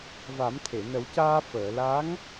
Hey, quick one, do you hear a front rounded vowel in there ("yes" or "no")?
no